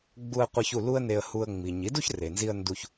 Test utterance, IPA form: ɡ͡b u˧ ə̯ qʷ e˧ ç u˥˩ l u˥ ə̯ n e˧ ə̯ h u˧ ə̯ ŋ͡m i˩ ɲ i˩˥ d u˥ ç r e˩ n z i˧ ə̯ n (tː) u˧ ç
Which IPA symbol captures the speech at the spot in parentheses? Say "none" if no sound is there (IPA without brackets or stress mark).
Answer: d